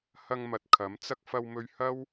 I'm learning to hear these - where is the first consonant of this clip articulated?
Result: throat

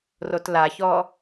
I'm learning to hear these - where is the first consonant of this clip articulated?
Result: tongue tip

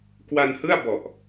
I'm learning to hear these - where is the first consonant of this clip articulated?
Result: velum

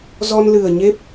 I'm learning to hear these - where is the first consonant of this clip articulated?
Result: tongue tip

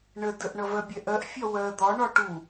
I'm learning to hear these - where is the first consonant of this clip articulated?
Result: retroflex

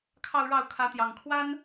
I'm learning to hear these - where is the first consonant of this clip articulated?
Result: velum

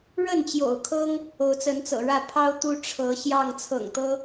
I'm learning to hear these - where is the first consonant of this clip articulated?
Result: retroflex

